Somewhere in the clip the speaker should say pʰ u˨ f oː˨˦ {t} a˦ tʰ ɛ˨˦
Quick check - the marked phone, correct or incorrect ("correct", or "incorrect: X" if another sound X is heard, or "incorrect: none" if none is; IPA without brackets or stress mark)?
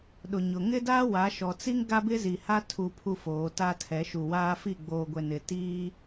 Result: correct